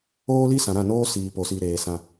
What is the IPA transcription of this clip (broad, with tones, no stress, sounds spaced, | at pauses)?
oː˦ l i˦ s ã˨ ɾ ã˦˨ n oː˦ s iː˨ p o˨ s i˨ ɾ eː˨ s ã˨